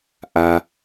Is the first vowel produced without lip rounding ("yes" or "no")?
yes